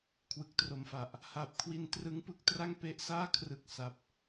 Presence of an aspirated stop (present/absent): present